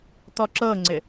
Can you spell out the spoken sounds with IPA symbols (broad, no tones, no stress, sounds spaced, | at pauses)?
t̪ ɔ ǁ ɤ ŋ͡ǀ ɪ